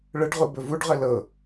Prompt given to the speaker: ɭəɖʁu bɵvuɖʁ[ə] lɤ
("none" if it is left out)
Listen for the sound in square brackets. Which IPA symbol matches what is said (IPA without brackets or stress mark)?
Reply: ə